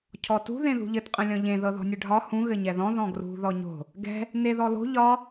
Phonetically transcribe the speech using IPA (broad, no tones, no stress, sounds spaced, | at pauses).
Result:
cʰ ɔ t ṳ ð ẽ ð ṳ ʎ ɘ t qʼ ə̃ lʲ ɔ̃ ʎ ẽ ð ɤ ð ɔ̤ nʲ ɘ ɖʱ ɒ h ũ ɣ ɘ ɲ ɛ ð ɔ̃ ð ɔ̃ ɡ r ṳ ð ɔ ɲ o̤ | ɡ ɛ̤ | n e ð ɔ l o̤ ʎ ɒ